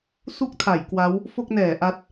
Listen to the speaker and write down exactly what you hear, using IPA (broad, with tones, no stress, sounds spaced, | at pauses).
s u˥˩ k̚ tʰ a˩˦ j k w a˦˥ w | f o˥˩ k̚ n ɛː˩˦ ʔ a˦˥ t̚